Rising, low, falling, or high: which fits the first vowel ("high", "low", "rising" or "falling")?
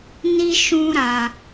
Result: high